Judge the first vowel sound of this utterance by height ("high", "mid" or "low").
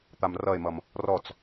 low